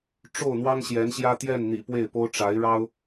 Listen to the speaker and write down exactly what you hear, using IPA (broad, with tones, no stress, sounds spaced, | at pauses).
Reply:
ʈ͡ʂ o˥˩ ʊ̯ n̪ w ɑ˥ ŋ ɕ j ɛ˧˥ n ɕ j ä˥ t̪ j ɛ˥˩ n n̪ ḭ˨˩ p w e˥˩ ɪ̯ p o˥ ʊ̯ ʈ͡ʂ a˧˥ ɪ̯ ɻ ɑ˥ ʊ̯